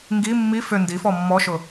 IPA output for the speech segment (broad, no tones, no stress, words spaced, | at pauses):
ŋɡi mːi fʏ ndifɔ mːɔʃʊ